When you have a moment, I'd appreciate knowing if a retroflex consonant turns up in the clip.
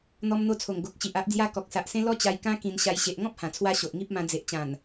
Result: no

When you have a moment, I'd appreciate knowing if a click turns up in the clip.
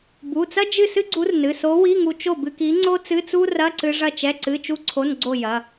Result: yes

